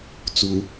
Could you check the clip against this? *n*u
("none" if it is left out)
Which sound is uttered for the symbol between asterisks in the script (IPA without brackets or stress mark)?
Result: t͡s